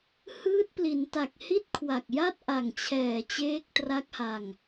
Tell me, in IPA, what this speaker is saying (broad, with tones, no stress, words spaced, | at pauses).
hɯː˦˥t̚pli˩˦nta˨˩k̚ hi˥˩t̚kʰwa˨˩k̚ ja˥˩t̚ʔa˨˩ŋt͡ɕʰɛː˨˩ t͡ɕeː˦˥k̚tra˦˥k̚ha˧ŋ